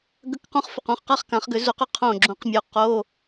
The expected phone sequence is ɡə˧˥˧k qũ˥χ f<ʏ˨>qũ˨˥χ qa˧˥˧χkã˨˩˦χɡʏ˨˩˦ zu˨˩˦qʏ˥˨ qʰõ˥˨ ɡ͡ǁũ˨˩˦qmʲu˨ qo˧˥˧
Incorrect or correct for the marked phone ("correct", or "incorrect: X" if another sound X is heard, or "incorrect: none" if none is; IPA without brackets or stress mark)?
correct